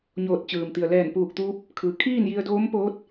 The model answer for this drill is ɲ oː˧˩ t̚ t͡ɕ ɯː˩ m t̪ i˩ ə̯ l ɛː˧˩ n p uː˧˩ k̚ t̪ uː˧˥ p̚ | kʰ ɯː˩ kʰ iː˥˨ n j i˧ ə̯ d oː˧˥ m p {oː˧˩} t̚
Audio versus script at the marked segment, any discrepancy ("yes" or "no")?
yes